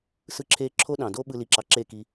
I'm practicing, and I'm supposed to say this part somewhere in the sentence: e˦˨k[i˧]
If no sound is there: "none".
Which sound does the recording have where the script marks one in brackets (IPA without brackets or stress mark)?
i˧